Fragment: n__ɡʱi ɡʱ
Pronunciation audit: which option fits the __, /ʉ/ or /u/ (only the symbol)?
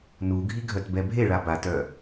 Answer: u